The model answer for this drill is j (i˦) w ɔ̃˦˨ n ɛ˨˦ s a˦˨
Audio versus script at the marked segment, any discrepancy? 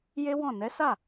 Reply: yes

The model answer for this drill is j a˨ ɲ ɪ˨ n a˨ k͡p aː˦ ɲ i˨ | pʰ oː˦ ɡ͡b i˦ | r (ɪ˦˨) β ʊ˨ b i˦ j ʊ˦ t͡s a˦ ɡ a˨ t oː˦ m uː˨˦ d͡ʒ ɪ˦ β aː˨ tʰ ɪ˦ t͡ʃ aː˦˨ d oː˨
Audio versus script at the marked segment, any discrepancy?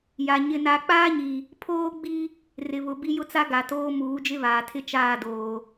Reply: yes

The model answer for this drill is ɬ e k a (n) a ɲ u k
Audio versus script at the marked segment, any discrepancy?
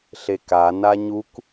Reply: no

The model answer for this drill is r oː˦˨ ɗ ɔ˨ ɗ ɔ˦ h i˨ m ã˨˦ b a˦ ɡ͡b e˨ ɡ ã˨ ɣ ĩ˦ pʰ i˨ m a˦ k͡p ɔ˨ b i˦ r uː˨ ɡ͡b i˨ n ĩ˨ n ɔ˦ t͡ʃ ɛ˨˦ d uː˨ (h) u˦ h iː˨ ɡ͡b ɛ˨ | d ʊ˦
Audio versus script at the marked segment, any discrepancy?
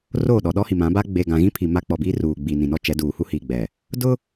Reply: no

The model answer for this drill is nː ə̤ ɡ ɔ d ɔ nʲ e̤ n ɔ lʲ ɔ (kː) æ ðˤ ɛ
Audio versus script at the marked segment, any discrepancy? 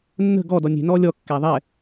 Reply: no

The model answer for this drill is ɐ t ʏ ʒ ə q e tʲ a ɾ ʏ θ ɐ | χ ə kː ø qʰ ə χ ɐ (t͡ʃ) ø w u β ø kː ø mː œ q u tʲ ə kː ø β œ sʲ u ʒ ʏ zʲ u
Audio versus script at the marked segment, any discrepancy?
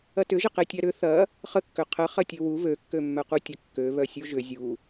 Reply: yes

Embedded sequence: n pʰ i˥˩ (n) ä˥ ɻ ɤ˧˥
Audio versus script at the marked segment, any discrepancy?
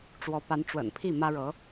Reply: yes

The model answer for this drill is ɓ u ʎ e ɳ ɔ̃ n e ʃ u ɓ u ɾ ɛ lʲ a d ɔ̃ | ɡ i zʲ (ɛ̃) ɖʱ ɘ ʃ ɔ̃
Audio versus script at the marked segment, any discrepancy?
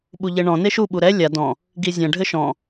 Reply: no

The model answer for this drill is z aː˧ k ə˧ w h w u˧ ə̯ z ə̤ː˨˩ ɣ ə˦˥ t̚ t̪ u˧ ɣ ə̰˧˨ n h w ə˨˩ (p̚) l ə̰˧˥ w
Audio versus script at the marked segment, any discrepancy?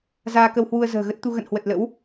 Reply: yes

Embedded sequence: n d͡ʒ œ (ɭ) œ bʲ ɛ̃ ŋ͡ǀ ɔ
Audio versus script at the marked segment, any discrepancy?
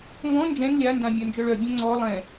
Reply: no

